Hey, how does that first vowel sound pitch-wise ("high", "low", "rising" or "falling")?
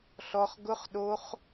high